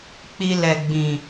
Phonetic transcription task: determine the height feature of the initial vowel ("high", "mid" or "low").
high